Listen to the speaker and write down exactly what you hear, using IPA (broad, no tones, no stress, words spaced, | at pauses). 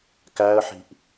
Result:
kæə̯ħi̤ʔ